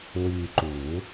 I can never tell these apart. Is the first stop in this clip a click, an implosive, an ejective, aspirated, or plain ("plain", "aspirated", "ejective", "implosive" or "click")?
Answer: click